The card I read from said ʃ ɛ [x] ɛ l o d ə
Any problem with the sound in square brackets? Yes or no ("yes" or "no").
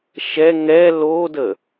yes